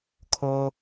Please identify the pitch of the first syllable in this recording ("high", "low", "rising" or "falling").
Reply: high